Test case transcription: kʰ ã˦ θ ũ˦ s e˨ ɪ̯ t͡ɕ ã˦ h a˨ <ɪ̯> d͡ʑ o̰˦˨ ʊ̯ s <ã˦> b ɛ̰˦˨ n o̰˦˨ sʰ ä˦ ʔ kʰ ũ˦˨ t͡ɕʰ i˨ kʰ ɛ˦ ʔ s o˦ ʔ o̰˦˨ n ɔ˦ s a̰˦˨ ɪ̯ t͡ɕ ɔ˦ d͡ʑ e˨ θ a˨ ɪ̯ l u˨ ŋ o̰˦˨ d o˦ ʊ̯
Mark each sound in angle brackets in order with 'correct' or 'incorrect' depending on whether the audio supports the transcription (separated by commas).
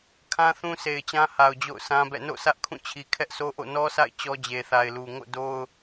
incorrect, correct